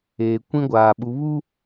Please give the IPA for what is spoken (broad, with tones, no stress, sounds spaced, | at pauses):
eː˨ kʷ ĩ˦ ɡʷ aː˨ ɓ u˨˦ β u˦